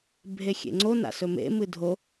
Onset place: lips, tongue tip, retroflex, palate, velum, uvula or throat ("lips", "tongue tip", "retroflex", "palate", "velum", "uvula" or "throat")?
lips